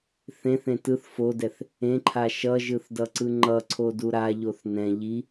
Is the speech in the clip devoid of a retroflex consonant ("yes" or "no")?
yes